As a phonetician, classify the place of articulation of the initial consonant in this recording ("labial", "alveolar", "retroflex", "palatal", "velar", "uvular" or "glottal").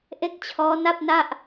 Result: glottal